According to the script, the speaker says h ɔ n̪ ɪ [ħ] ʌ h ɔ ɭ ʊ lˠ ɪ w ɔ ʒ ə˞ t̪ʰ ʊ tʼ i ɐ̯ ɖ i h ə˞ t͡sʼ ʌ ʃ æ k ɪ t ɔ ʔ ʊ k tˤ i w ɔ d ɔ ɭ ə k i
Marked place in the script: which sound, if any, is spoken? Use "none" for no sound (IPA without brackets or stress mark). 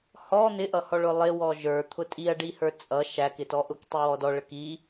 ʔ